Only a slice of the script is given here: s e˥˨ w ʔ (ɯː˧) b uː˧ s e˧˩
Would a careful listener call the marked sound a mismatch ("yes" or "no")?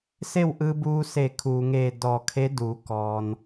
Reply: no